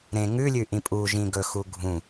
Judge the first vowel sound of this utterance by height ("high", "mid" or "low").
mid